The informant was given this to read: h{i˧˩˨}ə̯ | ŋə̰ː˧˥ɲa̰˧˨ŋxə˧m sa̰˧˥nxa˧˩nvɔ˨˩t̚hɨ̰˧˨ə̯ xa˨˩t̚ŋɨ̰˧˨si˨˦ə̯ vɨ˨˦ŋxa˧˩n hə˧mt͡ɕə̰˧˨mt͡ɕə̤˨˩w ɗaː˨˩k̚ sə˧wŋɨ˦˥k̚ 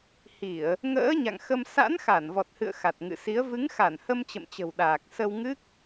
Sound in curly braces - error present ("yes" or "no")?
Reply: no